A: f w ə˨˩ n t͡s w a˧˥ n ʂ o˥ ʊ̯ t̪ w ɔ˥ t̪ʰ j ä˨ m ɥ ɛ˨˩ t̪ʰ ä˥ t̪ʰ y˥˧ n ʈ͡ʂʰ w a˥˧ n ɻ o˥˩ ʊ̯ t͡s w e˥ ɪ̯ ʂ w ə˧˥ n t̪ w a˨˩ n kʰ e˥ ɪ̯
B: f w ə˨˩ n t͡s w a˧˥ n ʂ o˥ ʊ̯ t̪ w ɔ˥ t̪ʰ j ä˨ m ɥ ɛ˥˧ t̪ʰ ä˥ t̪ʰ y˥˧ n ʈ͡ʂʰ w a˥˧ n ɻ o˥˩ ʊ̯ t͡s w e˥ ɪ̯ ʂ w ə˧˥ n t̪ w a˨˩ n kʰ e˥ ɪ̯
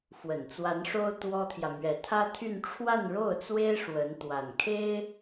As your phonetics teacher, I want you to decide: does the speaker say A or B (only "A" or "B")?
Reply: A